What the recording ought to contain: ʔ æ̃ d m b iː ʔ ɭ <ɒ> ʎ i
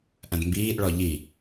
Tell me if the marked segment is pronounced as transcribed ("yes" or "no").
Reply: yes